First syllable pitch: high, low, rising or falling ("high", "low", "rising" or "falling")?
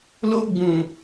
high